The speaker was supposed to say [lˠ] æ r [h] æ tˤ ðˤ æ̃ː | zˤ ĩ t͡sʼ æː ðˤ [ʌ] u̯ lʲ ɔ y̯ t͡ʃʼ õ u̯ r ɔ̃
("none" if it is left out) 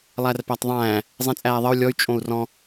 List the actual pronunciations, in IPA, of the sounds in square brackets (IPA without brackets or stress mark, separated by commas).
lˠ, p, ʌ